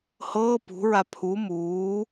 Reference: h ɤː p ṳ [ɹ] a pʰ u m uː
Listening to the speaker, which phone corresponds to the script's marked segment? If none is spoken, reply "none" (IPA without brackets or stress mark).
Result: ɹ